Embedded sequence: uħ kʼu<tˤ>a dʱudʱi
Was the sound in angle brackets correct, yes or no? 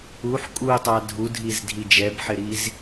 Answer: yes